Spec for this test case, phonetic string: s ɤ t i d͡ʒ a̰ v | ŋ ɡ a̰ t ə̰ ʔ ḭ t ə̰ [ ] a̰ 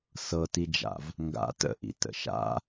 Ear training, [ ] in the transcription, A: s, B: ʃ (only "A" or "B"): B